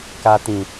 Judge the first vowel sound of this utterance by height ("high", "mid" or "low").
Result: low